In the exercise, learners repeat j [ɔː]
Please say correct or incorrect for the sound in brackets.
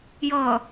incorrect